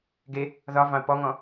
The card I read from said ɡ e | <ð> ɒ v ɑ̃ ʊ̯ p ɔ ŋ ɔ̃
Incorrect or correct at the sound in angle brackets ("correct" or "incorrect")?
correct